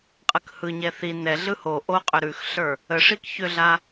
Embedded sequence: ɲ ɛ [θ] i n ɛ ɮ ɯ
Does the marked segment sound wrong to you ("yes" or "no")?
no